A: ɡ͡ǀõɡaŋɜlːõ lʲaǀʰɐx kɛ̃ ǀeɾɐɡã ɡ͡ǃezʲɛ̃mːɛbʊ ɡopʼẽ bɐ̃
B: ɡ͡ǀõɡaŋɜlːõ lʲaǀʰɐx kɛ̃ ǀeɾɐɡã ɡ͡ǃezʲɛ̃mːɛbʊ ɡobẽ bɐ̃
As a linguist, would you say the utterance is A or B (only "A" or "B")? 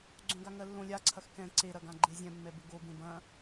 B